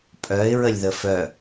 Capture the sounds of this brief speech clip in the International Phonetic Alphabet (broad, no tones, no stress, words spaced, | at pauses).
pʼœɪ̯ ɹəlʲðəfœ